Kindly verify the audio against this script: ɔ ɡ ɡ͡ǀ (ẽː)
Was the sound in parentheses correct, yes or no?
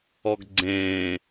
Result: yes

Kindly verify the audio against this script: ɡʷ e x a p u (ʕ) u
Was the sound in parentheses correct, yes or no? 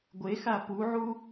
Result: yes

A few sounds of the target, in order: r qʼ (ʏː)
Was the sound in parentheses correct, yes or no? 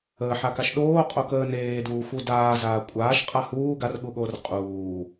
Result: no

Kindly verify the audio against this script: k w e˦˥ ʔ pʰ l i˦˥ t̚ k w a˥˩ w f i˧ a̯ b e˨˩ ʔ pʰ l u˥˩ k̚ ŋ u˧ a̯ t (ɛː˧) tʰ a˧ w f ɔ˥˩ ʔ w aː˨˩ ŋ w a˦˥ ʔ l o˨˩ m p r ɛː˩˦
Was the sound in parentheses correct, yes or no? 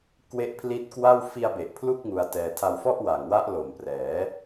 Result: yes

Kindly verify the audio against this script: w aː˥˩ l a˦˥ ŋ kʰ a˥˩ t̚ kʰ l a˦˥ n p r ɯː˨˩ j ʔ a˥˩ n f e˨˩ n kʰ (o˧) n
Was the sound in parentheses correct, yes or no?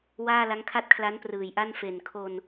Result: yes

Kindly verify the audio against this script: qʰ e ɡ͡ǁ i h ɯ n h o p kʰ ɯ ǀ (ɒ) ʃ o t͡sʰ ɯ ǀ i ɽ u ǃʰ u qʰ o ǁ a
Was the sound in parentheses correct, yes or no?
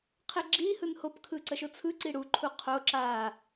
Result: no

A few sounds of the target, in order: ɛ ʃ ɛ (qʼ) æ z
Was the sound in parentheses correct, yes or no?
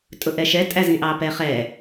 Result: no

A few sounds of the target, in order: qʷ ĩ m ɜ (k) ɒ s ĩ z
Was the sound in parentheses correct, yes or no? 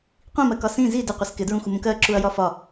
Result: yes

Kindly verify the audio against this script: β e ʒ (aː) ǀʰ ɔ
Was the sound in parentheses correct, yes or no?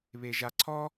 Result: no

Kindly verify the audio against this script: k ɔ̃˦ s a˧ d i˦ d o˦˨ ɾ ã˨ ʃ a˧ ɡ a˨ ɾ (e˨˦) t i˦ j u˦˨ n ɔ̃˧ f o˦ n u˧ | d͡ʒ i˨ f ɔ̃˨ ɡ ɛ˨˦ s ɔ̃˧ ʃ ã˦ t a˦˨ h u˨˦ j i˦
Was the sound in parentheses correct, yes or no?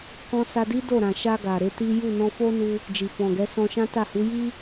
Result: yes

